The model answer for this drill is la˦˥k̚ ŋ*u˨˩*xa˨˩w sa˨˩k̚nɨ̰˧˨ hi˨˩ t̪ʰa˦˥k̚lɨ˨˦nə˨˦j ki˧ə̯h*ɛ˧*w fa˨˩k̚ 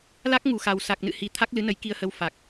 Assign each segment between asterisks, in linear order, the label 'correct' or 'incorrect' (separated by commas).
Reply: correct, incorrect